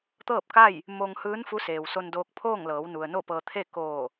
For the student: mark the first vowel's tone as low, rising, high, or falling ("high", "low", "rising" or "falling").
falling